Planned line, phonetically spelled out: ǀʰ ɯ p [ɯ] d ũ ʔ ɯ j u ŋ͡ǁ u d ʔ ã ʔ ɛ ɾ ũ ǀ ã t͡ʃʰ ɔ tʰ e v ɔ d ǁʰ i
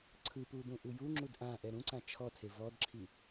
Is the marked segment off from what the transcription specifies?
yes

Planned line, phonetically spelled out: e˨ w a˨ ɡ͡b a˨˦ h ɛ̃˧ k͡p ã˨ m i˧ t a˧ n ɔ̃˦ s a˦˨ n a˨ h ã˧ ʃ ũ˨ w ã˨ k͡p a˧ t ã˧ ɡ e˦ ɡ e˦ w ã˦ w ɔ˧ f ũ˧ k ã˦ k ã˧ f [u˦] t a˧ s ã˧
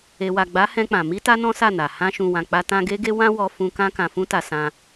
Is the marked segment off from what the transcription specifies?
yes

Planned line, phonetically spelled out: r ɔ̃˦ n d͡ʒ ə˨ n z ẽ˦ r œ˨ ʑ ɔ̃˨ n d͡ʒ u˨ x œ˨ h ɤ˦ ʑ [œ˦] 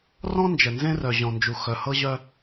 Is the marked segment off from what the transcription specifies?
no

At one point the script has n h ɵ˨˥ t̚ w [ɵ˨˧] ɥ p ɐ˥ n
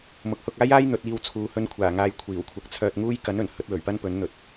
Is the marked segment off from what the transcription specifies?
yes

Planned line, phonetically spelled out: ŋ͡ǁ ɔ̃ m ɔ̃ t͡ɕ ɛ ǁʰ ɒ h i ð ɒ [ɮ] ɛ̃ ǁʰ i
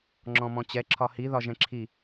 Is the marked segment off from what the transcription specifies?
yes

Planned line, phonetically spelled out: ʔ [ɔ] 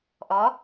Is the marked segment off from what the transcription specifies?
no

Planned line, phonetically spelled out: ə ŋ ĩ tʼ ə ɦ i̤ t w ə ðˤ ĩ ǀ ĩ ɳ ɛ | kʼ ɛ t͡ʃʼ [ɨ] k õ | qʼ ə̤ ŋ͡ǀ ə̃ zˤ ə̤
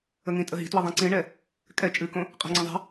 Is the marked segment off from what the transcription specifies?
no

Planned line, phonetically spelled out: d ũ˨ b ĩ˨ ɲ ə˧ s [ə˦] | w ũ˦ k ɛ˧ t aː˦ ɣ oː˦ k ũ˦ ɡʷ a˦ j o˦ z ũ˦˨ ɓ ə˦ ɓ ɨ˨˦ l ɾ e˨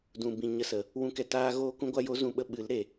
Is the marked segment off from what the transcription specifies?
yes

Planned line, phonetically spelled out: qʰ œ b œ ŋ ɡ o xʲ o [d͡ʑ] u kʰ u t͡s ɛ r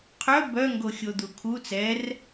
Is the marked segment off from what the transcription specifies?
yes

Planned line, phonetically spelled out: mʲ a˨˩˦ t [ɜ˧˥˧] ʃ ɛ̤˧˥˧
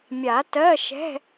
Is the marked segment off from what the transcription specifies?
no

